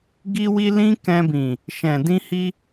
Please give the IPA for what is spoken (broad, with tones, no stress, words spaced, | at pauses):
ɡi˦wi˦ lĩ˦kɛ̃˧bĩ˨ | ʃɛ̃˨ dĩ˧hi˧